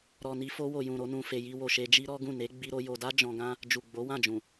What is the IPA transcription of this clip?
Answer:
ɾ ɔ˨ n i˧ f o˧ w o˨ j ũ˨ ɾ o˧ n ũ˨ f e˨ j i˧ w o˨ ʃ e˧ d͡ʒ i˦ ɾ ɔ˦ ɡ ũ˦˨ n e˨˦ ɡ͡b i˦ ɾ o˦ j o˧ d a˦ d͡ʒ ɔ̃˧ ɡ ã˦ | d͡ʒ u˨ ɡ͡b o˨˦ w ã˦˨ d͡ʒ ũ˨

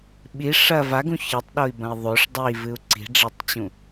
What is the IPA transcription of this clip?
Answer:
ɓ i ʂ ɐ v a ɡ ũ ç ɘ tˤ ɗ o i̯ b ɐ̃ i̯ ðˤ o ʂ dˤ i v ɨ u̯ ǀ i̤ ɖ͡ʐ ɛ tˤ t͡ɕ ũ

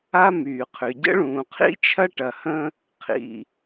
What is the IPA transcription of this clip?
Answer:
a˥ m yː˩ qʰ ʏ˩ ɟ ə̰˥ ɭ ũː˩ qʰ ḭ˥ t͡ʃʰ ɐ˥ ʈ ɐ˩ h ə̃˥ | qʰ ḭ˩

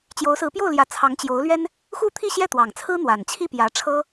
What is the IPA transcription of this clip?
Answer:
t͡ɕ j o˧˥ ʊ̯ s ɹ̩˧˥ p j o˥˩ ʊ̯ l j ä˧˥ t͡sʰ ɑ˧˥ ŋ t͡ɕ j o˧˥ ʊ̯ l ɥ ɛ˥ n | x u˥ t̪ʰ i˥˧ ɕ j ɛ˥˩ t̪ w ɑ˨˩ ŋ t͡sʰ ɹ̩˥ n̪ w a˨˩ n t͡ɕʰ i˥˩ p j ä˧˥ ʈ͡ʂʰ ɤ˥

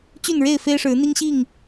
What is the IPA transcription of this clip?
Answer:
t͡ɕ y˥˨ n ɻ e˥˨ ɪ̯ f e˦ ɪ̯ ʂ ɻ̩˨˦ n̪ i˦ ŋ ɕ i˥˨ ŋ

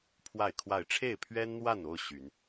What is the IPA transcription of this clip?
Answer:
pʰ w a˥˨ ɪ̯ kʰ w a˥˨ ɪ̯ ʈ͡ʂʰ e˥˨ ɪ̯ pʰ ɥ ɛ˦ n n̪ w a˥˨ n o˥˨ ʊ̯ ɕ y˨˦ n

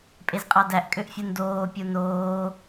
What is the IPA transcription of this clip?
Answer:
pʼ e z qʼ ɑ d æ ʔ kʼ ø ʔ fʲ u n d oː pʲ u n oː

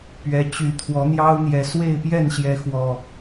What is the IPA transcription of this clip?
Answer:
p ɥ ɛ˨˦ t͡ɕ y˨˩ t̪ʰ w ɔ˨˦ n̪ j ɑ˦ ʊ̯ n̪ j ɛ˨˩ s w e˥˨ ɪ̯ p j ɛ˥˨ n ɕ j ɛ˨˦ x w ɔ˨˩

